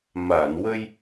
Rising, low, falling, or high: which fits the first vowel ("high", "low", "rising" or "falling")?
low